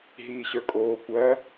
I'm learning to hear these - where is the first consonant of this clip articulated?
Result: throat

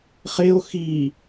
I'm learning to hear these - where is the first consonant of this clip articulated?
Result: uvula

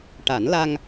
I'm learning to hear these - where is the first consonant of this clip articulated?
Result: retroflex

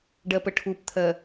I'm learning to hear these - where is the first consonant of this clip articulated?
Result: retroflex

